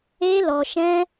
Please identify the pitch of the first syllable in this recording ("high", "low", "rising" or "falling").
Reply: high